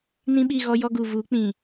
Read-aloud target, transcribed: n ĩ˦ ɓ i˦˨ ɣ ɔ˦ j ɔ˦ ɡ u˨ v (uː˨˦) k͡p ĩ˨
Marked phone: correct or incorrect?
correct